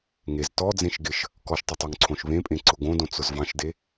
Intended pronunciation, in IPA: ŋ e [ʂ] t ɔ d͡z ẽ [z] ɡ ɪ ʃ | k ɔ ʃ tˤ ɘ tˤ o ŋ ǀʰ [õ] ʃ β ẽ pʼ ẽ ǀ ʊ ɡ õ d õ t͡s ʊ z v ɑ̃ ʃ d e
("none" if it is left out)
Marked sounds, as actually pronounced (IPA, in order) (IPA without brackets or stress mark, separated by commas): z, ʃ, õ